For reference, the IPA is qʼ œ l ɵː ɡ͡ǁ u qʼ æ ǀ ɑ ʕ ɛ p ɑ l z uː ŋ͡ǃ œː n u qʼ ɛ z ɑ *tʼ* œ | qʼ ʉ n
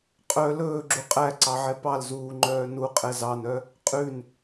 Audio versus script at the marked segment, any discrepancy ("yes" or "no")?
yes